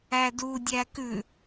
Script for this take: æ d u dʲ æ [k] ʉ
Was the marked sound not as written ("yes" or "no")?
no